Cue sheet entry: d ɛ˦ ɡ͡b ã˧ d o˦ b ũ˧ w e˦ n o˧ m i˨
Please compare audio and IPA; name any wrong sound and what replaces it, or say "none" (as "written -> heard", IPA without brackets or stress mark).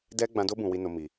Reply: e˦ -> i˦